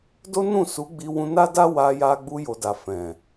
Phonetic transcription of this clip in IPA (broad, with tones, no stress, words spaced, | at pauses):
do˦nũ˦˨su˨˦ ɡ͡bi˧ wũ˧na˦da˦ wa˧ja˧ ɡ͡bu˧jo˨da˨ fɛ̃˨